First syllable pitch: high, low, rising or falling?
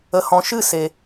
low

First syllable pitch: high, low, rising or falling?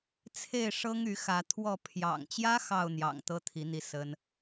falling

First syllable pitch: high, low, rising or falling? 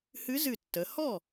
rising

